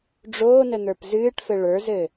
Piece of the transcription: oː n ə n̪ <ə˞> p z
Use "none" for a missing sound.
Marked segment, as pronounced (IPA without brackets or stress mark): ə˞